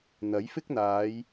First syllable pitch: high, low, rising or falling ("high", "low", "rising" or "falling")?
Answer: rising